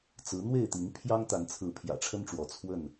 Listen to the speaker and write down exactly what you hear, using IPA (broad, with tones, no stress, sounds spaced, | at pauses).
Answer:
t͡s ɹ̩˨˦ n̪ w e˥˨ ɪ̯ t̪ i˨˦ ŋ pʰ j ɑ˦ ŋ t̪ a˨˦ n t͡sʰ ɹ̩˨˦ pʰ j ä̰˨˩ ʈ͡ʂʰ ə˦ n ʈ͡ʂ w ɔ˨˦ t͡sʰ w ə˥˨ n